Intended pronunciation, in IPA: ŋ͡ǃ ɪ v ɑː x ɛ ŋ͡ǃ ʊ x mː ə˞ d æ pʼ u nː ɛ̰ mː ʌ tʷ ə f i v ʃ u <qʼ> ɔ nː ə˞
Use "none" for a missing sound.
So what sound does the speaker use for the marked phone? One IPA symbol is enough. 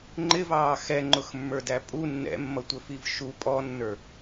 pʼ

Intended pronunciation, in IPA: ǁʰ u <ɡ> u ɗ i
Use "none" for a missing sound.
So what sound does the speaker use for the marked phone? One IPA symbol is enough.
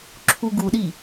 ɡ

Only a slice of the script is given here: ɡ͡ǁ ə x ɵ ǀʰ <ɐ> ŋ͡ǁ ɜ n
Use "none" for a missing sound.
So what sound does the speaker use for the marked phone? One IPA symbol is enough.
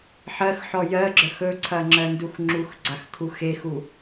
ɐ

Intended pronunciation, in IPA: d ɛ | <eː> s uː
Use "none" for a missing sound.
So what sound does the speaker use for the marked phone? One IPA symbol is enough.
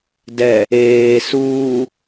eː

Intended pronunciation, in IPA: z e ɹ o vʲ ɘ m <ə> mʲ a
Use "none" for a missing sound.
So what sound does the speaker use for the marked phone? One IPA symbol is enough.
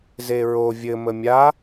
ə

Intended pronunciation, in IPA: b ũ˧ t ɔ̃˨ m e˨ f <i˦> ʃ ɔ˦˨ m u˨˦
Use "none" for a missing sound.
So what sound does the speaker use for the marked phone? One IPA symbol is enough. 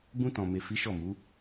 i˨˦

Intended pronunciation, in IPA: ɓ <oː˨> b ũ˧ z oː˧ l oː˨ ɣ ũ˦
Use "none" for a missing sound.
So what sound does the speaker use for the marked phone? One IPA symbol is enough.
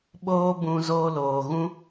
oː˦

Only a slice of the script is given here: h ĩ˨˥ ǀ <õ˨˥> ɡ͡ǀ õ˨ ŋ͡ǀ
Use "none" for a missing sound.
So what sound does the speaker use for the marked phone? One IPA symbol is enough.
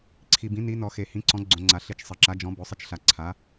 ɔ̃˨˥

